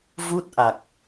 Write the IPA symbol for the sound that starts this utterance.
v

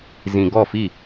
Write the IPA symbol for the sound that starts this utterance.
z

